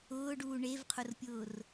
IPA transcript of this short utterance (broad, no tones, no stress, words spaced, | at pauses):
ʊːɖuː ɳevqʰʊrpʲʊːr